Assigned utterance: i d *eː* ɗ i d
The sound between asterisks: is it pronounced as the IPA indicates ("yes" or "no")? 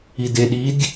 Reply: no